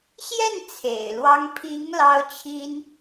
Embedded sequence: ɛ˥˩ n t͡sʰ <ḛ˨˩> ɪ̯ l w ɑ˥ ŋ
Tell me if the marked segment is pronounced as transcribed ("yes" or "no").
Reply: yes